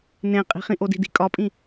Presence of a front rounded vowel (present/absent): absent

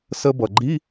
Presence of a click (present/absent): present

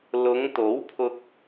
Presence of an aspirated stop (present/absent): present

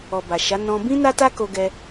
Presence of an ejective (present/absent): absent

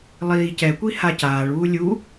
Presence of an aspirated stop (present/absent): absent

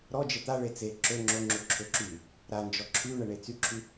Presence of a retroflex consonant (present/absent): present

